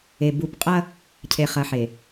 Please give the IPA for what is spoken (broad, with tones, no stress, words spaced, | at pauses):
e˨ bu˦˨p qʼɐ˦ | cʰe˨ χɐ˨˦ħe˨